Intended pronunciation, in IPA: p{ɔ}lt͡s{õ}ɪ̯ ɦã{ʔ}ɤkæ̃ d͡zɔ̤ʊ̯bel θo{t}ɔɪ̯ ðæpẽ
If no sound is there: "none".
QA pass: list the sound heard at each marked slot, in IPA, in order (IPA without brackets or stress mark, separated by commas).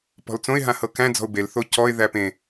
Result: ɔ̤, õ, h, c